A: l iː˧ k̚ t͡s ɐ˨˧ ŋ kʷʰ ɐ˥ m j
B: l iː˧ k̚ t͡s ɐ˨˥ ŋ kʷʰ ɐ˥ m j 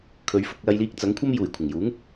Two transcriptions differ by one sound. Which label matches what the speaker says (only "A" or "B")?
B